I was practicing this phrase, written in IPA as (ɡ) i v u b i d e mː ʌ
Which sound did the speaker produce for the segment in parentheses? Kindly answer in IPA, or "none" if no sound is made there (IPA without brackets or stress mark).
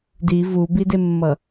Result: d